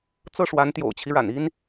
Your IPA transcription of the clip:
t͡s ɤ˥˩ ʂ w a˧˥ n t̪ j o̰˨˩ ʊ̯ t͡ɕʰ i˦ ɻ a̰˨˩ n i˥ n

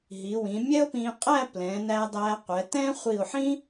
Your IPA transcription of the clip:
ɦ i˩˧ w ĩ˩˧ mʲ ɛ˥ o̯ p ĩ˧ qʼ æ˥˧ p l ɛ̃˩˧ n æ˧ dˤ æ˧ qʷ ɛ˩˧ t ɛ̃˥ χʷ i˧˩ o̯ ħ ĩ˥

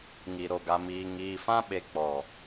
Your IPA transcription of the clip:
ŋ i˨ ɾ o˨ ɡ a˨ m iː˨ ŋ iː˨ f ã˦ ɓ e˨ k͡p ɔ˨

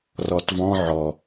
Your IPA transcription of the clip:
r ɔ t v ɔ̃ ʕ ɔ

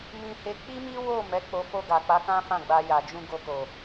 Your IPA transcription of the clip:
m ĩ˧ h e˧ k͡p i˦ m i˦ w o˦˨ m ɛ˨˦ k͡p o˧ f o˧ ɡ a˨ k͡p a˨˦ k ã˦ f ã˦˨ ɡ͡b a˧ j a˨ d͡ʒ ũ˧ ɡ o˧ k o˨

